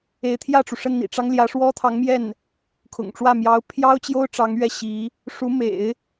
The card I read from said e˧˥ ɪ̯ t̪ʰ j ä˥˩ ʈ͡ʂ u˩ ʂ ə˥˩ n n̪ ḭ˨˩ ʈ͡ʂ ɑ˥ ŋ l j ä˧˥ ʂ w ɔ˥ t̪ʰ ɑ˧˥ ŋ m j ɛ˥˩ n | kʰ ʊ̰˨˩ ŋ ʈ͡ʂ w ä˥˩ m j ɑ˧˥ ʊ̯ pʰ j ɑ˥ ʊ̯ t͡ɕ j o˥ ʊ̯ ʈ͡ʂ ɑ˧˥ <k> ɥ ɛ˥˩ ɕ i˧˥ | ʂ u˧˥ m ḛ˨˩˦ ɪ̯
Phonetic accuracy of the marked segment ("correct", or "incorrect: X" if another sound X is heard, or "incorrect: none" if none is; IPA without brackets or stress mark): incorrect: ŋ